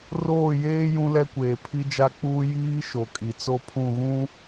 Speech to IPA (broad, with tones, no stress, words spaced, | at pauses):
roː˦˨jeː˦ jũ˦lɛ˦kʷeː˨ pʰi˦d͡ʒa˦k͡puː˦ jiː˦ ʃo˨kʼi˨t͡so˦ pʰũ˦˨ɣũ˦